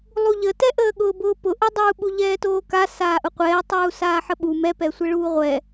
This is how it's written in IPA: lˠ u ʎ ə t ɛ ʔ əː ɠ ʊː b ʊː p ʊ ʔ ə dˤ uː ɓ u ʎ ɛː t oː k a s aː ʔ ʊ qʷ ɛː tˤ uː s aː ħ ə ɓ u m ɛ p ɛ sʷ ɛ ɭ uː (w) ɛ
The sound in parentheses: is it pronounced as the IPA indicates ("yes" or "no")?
no